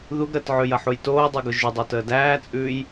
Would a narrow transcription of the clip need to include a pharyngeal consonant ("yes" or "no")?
yes